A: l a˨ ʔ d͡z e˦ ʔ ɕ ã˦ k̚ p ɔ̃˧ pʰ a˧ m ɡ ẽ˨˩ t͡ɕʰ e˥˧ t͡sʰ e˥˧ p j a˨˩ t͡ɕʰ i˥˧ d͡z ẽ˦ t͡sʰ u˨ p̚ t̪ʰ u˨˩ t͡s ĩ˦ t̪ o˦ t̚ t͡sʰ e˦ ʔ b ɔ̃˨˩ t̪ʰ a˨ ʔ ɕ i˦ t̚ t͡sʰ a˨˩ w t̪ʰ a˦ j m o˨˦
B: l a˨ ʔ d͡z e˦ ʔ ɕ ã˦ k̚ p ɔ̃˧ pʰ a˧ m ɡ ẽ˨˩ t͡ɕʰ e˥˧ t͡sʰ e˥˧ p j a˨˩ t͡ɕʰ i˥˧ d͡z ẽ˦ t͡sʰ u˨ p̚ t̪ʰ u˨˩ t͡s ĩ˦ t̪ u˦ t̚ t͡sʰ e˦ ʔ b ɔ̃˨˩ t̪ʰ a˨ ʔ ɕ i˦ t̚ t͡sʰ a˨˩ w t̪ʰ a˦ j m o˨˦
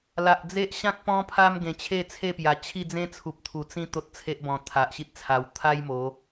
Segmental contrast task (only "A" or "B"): A